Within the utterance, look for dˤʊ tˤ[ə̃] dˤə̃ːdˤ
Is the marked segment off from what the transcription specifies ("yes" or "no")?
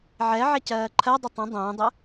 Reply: no